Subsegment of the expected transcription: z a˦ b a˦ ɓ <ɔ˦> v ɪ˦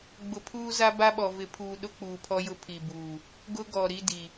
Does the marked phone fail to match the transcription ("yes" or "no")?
yes